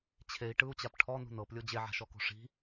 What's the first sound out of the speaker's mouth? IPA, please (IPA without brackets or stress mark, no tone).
t͡ɕʰ